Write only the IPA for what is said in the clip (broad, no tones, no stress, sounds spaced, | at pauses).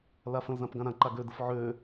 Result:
l a f ə̃ l z ã p ɡ ã ɾ ã ǃ a ɡ ø d ə f ʕ ø